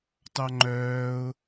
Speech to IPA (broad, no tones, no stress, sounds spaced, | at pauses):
t ɑ ŋ͡ǃ œː ʊ̯